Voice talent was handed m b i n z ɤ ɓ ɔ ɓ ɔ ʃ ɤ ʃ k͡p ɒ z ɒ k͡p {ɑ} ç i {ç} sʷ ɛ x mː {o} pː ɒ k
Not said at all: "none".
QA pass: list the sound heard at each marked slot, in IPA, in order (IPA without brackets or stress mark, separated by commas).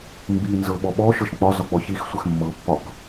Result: ɔ, x, ɤ